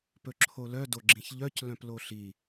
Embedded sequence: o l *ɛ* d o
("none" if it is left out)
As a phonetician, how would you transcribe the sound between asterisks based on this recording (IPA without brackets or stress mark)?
œ